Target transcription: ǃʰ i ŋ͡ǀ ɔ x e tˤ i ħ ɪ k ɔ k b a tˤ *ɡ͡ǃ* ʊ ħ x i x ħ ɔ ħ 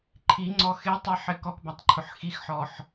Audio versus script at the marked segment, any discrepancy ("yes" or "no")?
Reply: yes